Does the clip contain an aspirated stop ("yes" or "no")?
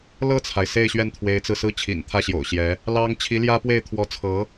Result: yes